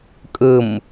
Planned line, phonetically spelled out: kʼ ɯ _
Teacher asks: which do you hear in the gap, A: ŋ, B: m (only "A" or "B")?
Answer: B